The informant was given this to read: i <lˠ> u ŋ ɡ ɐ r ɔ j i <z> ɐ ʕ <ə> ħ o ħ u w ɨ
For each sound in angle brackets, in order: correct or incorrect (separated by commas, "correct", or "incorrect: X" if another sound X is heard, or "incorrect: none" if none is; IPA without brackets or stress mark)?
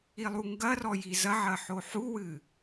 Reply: correct, correct, incorrect: ɐ